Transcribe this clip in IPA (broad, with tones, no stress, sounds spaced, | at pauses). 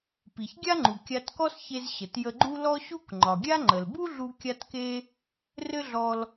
p i˩ ç ɡʲ a˥ ŋ͡ǃ u˩ kʲ a˧ t k ɔ˥ s ç e˧ z ɕ ə˩ t j ə˧ ɡ͡ǃ u˥ l ɔ˥ ɕ u˥ k ŋ͡ǃ ɒ˩ ɡʲ a˥ ŋ͡ǃ ə˩ l b u˥ ɮ u˧ kʲ a˥ t k e˥ | r ɘ˥ ɮ ɔ˧ l